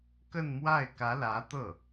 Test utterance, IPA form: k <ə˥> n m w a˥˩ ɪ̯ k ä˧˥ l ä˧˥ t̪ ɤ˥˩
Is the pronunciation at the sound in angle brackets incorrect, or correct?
incorrect